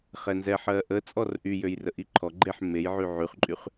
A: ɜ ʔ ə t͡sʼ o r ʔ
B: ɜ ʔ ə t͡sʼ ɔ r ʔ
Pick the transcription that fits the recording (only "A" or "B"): B